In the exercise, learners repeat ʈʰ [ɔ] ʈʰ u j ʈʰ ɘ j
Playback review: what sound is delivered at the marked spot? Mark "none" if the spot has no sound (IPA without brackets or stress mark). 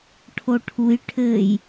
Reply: o